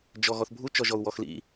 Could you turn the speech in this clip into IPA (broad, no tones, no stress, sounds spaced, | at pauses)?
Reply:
d͡ʒ ɔ ɣ ɔ θ bʱ u t͡ʃ ɔ ʒ ɔ u̯ w ɔ x l ḭ